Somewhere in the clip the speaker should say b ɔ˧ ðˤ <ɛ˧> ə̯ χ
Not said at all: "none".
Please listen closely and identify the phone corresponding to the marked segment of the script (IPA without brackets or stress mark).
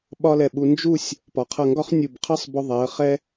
ɛ˩˧